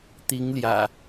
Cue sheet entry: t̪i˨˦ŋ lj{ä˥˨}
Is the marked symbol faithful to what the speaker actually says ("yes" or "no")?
no